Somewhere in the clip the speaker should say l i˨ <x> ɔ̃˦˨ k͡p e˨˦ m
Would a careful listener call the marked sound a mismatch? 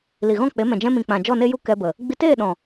yes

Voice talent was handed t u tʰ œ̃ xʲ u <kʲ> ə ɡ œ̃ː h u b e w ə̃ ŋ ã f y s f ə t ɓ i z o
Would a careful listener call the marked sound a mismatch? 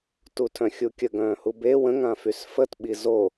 no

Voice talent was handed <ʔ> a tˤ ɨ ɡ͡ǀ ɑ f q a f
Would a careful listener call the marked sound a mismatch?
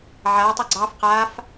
yes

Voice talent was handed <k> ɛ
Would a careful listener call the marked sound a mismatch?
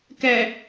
no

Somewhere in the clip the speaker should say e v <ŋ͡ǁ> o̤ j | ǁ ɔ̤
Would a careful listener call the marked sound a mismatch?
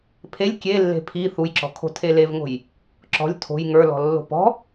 yes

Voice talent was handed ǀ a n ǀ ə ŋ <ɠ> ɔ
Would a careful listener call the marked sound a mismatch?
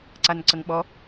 yes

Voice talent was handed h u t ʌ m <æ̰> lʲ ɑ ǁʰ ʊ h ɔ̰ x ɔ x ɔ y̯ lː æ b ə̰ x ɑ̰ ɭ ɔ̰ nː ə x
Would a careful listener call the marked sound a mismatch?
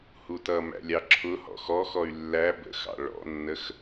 no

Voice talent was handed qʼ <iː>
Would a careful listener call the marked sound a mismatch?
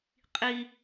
yes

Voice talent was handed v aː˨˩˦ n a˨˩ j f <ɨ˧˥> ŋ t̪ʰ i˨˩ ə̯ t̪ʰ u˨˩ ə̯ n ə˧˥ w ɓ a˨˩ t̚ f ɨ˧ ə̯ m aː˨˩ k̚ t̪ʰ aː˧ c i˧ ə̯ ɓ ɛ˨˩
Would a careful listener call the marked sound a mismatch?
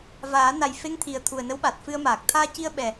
yes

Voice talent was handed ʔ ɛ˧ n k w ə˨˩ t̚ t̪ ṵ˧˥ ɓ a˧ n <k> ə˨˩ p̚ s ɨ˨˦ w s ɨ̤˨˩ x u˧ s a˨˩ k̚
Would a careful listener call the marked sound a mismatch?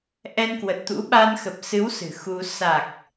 yes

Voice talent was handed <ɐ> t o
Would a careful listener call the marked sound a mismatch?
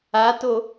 yes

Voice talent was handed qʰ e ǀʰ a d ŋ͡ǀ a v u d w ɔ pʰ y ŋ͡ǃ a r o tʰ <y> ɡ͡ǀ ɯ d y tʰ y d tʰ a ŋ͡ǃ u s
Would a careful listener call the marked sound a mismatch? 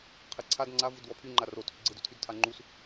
no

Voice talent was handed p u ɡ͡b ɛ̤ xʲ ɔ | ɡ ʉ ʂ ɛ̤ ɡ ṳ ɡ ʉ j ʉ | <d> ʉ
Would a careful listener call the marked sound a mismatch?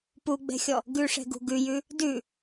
no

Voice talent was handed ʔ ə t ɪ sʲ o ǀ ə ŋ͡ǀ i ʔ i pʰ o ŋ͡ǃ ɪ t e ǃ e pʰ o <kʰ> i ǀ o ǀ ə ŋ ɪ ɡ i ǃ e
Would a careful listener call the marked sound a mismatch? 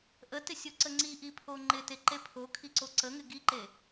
no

